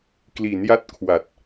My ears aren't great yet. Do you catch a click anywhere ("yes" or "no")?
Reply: no